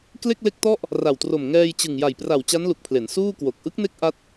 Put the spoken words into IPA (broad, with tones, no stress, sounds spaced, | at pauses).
k l e˥˩ k̚ l e˦˥ k̚ t ɔ˥˩ ʔ | r a˨˩ w t r o˨˩ m ŋ ɛː˧ j t͡ɕ ɯ˨˩ ŋ j a˨˩ j p r a˨˩ w t͡ɕ a˦˥ n l u˨˩ k̚ pʰ l e˩˦ n s uː˥˩ k w o˨˩ k̚ ʔ ɯ˦˥ k̚ n e˦˥ k̚ ʔ a˦˥ t̚